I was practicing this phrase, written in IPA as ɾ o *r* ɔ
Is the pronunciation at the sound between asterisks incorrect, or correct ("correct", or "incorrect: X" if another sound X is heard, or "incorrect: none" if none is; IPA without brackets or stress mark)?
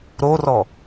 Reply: correct